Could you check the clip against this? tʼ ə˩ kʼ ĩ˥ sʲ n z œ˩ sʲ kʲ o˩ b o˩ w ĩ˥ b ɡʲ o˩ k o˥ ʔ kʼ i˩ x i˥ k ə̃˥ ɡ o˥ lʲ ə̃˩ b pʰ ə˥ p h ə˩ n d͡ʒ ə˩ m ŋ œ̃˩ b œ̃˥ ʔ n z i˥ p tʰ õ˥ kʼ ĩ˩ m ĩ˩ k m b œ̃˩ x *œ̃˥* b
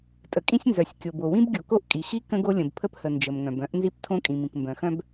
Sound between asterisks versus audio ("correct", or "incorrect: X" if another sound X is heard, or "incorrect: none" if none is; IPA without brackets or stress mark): correct